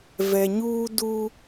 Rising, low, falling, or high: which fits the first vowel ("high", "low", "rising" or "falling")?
low